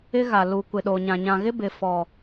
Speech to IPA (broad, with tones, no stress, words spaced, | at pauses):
ɪ˦ɣa˨lu˨ kʷɪ˨ɗo˨ɲã˨ ɲã˨ɣɪ˦bɪ˨ fɔ˨